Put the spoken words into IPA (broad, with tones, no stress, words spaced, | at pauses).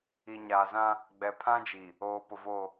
i˨ɲaː˨zã˦ | ɡ͡bɛ˨pʰã˦d͡ʒi˨ | oː˨ pʊ˨voː˦˨